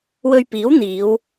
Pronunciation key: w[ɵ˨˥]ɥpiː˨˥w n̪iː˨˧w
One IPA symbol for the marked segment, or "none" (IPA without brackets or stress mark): ɵ˧